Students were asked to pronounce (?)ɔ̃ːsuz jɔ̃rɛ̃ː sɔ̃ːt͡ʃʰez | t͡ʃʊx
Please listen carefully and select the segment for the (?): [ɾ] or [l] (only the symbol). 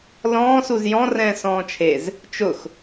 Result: l